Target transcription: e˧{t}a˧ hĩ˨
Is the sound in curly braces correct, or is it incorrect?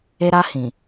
incorrect